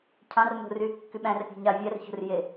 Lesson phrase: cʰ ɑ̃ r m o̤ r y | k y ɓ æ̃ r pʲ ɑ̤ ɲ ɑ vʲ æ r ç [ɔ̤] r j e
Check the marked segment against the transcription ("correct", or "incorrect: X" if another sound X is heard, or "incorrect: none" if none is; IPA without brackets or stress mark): incorrect: o̤